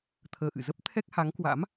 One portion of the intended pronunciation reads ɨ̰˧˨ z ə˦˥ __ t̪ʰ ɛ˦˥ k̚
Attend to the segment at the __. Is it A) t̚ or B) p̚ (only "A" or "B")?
B